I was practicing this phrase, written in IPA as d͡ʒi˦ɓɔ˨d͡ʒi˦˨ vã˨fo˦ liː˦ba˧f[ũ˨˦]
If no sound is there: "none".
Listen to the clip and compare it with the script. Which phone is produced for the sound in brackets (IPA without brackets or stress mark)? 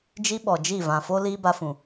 ũ˨